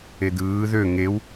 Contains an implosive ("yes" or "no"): no